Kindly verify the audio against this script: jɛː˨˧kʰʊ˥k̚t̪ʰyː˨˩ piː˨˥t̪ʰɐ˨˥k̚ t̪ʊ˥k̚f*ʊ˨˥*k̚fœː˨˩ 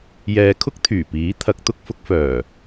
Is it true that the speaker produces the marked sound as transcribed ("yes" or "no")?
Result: yes